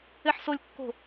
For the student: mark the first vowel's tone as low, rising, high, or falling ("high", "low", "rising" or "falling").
high